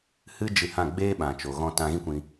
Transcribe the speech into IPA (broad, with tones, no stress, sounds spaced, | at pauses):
h ɨ˦ d͡ʒ ɨ˧ h ã˦˨ ɡ͡b eː˦ ɓ ã˨ t͡ʃ o˨ ɣ ɔ̃˧ t ã˧ ɣ ĩ˦ kʷ ĩ˧